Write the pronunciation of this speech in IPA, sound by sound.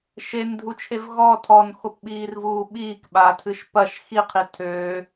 ʃ e n dʱ u t͡ʃʰ e v ɣ ɔ tʰ ɔ n x o p ɓ iː r v uː ɓ iː k ɓ aː tʰ ɨ ʃ p ɐ ʃ x i qʰ i tʰ øː

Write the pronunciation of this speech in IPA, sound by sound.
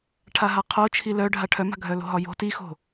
ʈʰ a ɦ a qʰ o t͡ʃʰ i l œ ɖʱ a ʈʰ œ m a̤ ɡʱ œ l o̤ ɦ ɒ j o̤ t i x o̤

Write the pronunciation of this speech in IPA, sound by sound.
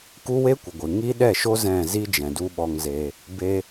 k u˦ w e˦ kʷ ə˨ ɡʷ ɨ˨ ŋ i˦ ɗ ɛ˦˨ ʃ o˦ z ɛ̃˦˨ z i˦ d͡ʒ ɛ̃˨ d u˦ ɓ ɔ˧ ŋ z e˧ | b e˧

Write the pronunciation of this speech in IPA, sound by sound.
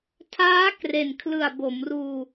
tʰ aː˦˥ k r e˨˩ n kʰ l ɯ˨˩ a̯ b o˩˦ m r uː˧

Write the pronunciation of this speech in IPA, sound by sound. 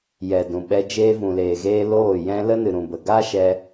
j ɛ˨ d ũ˨ ɓ ɛ˧ d͡ʒ eː˧ v ũ˨ l eː˨ ɣ eː˧ l oː˦˨ j ɛ̃˦ l ə˦ n ɨ˨ ɾ ũ˨ b ə˨ ɡ a˦ ʃ ɛ˧

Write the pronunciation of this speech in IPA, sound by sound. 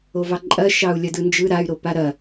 o v ɑ ǃʼ ɐ ʃ ɑ u̯ lʲ ɐ d ɯ n d͡ʒ ɯ ɾ a y̯ ɾ o p a ɾ ɐ

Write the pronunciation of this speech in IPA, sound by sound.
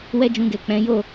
w ɛ˦ d͡ʒ ũ˧ ɡ ɛ˨ k͡p ɛ̃˨˦ j o˦˨

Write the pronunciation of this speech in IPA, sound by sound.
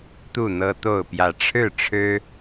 t̪ u˥˨ n̪ ɤ˦ t̪ o˥˨ ʊ̯ p j ä˨˦ ʈ͡ʂʰ ɻ̩˥˨ ʈ͡ʂʰ ɻ̩˦

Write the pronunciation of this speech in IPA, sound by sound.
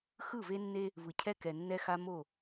x ɯ˦˨ v e˦ nː e˦ | v ɯ˨ cʰ ɛ˦ k ɛ˨ nː ɛ˦ x a˦ m o˦˨

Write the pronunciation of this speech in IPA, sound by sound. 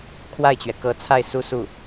kʰ w a˥˩ ɪ̯ t͡ɕ ɥ ɛ˩ k ɤ˧˥ t͡sʰ a˥˩ ɪ̯ s u˥ s u˥˩

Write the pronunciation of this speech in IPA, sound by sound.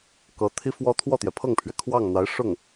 k ɤ˧˥ t̪ʰ i˥ f w ɔ˥ t̪ʰ w ɔ˥˩ t̪ j ɛ˩ pʰ ɤ˥˩ ŋ pʰ ɥ ɛ˩ kʰ w ɑ˥˩ ŋ n̪ a˧˥ ɪ̯ ʂ ʊ˥˩ ŋ

